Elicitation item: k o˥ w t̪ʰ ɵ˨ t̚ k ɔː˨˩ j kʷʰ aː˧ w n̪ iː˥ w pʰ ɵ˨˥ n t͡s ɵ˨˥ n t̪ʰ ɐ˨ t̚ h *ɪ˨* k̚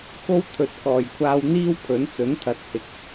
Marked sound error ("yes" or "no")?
no